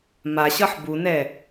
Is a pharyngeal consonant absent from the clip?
no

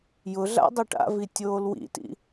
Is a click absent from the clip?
yes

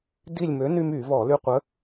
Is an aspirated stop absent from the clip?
yes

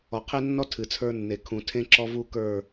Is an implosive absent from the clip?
yes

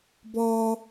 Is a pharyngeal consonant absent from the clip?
yes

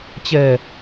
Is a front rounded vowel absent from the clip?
yes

